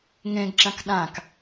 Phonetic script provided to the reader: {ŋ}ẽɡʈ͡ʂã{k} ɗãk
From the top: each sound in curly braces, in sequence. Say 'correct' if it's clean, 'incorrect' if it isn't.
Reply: correct, correct

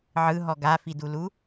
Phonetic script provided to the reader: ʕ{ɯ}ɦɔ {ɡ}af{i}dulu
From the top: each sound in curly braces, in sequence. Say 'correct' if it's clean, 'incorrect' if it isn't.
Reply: correct, correct, correct

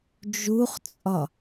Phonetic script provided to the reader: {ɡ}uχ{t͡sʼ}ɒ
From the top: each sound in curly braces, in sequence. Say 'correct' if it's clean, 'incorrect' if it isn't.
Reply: incorrect: d͡ʒ, correct

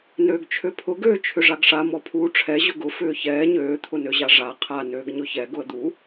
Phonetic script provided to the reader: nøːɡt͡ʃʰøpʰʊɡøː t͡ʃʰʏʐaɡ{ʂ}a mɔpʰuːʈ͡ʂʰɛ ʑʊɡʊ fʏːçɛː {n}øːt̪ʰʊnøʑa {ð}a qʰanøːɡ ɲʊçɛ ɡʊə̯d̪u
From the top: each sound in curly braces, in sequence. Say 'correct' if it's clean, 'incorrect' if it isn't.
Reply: correct, incorrect: ɲ, incorrect: ʐ

